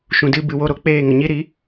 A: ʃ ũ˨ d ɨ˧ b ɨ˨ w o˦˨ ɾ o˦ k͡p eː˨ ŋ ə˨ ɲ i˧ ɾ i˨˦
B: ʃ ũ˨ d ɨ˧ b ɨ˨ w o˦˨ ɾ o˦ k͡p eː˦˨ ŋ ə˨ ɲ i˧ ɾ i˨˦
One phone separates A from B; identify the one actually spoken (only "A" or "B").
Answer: B